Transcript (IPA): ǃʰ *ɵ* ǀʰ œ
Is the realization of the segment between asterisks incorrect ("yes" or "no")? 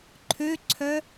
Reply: yes